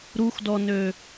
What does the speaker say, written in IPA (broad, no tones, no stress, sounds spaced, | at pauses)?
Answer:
ɾ u x d ɔ n ø